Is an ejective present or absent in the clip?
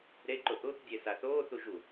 absent